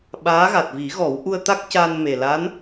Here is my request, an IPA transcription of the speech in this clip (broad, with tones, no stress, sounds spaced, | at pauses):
ɓ aː˧˥ ɣ a˨˩ t̚ v i˨˩˦ ɣ ɔ˨˩˦ w ʔ u˧ ə̯ t̪ a˦˥ k̚ c a˧ n m e˨˩ l a˧˥ n